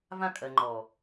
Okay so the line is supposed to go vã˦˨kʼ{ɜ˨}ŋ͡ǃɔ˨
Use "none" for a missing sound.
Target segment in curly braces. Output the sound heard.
ɜ˨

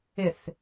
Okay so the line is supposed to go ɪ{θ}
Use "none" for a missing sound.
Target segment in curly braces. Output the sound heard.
θ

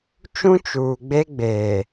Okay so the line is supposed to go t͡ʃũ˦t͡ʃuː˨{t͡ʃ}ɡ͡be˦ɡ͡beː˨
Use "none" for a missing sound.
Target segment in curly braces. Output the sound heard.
none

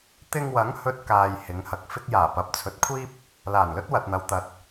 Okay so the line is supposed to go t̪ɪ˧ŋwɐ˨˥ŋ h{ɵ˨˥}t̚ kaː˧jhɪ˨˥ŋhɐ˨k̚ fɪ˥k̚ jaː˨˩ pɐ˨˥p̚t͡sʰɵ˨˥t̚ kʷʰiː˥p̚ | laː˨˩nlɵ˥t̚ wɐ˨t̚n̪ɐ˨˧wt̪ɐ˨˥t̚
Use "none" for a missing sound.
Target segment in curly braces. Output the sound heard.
ɵ˥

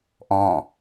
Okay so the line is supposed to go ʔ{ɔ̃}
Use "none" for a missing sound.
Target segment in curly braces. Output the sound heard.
ɔ̃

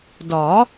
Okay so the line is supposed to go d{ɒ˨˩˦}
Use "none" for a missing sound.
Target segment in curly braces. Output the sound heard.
ɒ˨˩˦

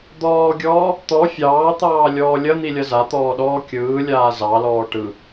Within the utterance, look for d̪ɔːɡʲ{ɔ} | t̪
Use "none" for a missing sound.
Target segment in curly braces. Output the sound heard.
ɔː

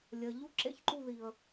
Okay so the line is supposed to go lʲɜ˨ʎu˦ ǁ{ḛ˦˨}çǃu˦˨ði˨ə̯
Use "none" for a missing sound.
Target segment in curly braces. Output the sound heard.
ḛ˦˨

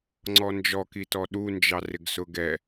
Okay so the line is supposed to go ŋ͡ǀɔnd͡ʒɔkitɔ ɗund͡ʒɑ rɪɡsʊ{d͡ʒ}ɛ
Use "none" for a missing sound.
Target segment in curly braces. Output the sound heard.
ɡ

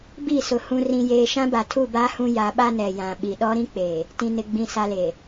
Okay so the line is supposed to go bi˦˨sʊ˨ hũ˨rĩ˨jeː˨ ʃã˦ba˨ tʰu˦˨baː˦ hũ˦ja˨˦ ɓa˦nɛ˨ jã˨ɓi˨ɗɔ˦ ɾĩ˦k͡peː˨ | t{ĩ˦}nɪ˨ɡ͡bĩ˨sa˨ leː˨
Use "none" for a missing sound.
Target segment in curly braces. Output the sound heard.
ĩ˨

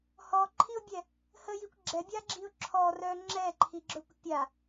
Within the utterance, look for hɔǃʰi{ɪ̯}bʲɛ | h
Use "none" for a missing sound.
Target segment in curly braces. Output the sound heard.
ʊ̯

